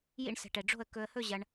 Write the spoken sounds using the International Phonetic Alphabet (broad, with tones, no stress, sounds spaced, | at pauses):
j ḭ˥˧ ɳ s ɛ̤˧ ʈ ɛ˧ ɖ͡ʐ o̤˥˧ ə̯ k ɵ˧ ə̯ h ɵ˥˧ ʑ ɐ˧ ɳ